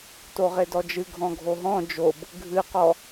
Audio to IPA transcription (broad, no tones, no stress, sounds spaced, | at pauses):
t o ʁ e d ɔ d͡ʒ ɨ ɡʱ ɔ̃ ɡʱ o ɦ ɔ̃ d͡ʒ o b | ɡʱ ɨ q ɔ